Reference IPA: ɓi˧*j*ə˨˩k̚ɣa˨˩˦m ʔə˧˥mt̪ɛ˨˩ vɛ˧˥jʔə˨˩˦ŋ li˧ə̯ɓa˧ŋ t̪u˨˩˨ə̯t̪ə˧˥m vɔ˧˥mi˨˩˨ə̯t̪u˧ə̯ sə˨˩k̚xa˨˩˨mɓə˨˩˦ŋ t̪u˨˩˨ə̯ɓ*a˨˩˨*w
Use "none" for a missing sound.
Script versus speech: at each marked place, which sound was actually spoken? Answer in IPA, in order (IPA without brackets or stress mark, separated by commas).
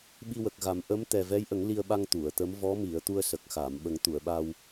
w, a˧